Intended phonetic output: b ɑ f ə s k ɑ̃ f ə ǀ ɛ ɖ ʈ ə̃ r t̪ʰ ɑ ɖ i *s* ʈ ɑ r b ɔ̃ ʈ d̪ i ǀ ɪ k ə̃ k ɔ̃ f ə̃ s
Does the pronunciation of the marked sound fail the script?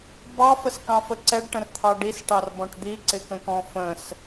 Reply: no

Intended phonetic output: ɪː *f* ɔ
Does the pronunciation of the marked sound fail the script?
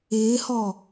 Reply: yes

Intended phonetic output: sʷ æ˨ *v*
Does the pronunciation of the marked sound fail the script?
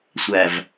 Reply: no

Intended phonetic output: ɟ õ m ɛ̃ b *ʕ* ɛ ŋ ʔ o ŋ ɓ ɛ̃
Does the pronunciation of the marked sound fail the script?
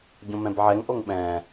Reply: no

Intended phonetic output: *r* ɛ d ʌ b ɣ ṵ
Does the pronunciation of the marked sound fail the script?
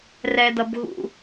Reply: no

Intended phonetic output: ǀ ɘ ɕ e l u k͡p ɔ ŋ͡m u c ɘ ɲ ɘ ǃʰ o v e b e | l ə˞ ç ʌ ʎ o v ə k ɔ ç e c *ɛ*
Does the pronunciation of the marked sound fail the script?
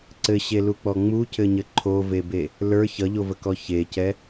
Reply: no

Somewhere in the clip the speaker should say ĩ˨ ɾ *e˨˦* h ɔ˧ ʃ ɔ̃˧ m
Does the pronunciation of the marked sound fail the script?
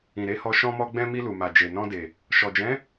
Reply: no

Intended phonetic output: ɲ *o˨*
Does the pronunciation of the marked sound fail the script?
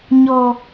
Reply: yes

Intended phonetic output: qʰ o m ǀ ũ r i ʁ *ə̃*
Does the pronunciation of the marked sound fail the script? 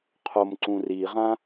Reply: yes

